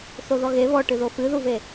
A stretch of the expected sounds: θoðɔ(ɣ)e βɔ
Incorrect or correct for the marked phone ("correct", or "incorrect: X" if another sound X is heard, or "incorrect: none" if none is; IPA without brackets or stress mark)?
correct